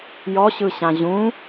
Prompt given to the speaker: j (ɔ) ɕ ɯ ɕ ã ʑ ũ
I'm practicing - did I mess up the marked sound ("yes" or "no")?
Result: no